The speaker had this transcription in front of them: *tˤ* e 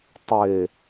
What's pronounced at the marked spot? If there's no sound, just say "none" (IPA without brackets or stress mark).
tˤ